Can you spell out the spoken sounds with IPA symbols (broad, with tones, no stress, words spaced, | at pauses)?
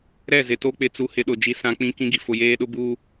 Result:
ɾɛ˦˨zɪ˨to˦ k͡pɪ˨t͡su˨ hɪ˦ɗʊ˨d͡ʒi˦ sã˦ k͡pĩ˦ kĩ˦ɡi˨ fʊ˨jeː˦ɗʊ˦ buː˦